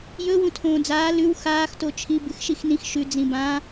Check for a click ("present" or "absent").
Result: absent